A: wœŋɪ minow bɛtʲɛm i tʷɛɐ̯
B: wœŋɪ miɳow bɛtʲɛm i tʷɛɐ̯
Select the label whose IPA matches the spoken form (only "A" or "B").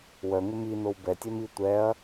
A